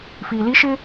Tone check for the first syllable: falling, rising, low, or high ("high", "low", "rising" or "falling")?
low